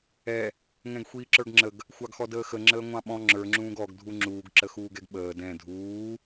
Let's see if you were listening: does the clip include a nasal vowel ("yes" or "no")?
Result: yes